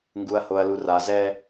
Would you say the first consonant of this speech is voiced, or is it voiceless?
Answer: voiced